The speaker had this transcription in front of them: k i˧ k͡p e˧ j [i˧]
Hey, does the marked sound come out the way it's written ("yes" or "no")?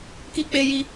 yes